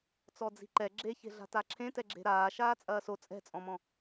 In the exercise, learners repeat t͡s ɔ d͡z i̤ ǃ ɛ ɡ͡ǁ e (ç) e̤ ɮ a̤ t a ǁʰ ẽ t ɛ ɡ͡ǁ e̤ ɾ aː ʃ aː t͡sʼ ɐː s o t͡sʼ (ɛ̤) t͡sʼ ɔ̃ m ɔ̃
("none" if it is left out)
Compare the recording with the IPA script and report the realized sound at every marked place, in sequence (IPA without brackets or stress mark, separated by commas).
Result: ç, ɛ̤